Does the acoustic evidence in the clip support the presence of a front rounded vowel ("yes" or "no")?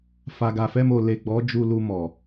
no